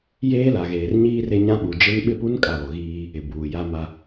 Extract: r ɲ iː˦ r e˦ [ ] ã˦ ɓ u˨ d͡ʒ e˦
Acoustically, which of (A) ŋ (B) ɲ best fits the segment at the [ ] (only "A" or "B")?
B